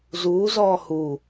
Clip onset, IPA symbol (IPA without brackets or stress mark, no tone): z